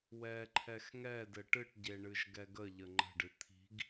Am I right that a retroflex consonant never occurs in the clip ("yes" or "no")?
no